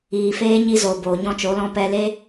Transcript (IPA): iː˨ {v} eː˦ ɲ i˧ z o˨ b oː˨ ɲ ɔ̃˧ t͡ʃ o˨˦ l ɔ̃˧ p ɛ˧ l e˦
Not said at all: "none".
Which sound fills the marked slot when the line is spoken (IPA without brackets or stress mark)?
f